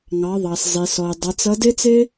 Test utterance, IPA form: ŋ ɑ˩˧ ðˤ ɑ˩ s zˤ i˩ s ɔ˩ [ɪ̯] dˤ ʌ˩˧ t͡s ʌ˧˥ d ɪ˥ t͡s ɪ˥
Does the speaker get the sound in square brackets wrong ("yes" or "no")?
no